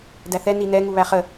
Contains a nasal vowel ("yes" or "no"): no